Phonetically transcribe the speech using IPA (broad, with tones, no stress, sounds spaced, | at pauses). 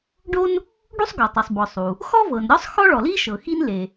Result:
ɖ o˥ n | ɖ u˥ sˤ ɡ ɔ˩ tˤ ɤ˩ sˤ b ɔ˩ sˤ u˩ | x ɔ˥ v ɤ˩ n ɾʲ ɔ˥ sˤ x ɔ˥ ɭ ɔ˩ l i˥ ʃ ɤ˩ x i˥ n l e˩